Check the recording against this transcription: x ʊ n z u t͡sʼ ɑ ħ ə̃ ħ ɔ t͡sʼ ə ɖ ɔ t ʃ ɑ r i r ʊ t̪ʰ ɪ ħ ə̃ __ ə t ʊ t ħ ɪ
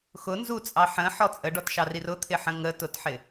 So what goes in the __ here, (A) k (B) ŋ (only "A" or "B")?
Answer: B